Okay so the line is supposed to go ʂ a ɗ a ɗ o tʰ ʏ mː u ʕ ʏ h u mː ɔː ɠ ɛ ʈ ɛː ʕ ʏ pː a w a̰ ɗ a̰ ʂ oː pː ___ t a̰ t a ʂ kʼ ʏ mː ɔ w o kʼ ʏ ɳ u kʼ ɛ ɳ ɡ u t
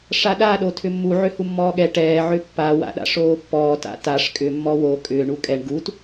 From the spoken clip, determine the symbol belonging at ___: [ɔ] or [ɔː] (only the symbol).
ɔː